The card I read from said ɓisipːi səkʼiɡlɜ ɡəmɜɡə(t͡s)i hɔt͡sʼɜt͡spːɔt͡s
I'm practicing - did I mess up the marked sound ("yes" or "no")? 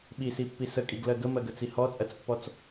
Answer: no